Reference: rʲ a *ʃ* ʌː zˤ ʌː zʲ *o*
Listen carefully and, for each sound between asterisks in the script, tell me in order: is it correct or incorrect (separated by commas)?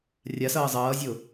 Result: incorrect, correct